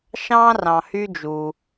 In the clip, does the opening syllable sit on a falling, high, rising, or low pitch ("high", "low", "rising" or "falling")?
high